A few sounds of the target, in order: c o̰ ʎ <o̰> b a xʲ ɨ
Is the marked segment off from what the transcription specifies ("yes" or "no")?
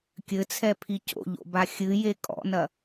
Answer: no